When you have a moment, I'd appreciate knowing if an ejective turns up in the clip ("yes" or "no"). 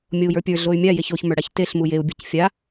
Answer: no